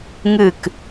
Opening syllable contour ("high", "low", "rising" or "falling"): falling